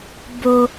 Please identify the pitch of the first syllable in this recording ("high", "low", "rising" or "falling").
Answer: low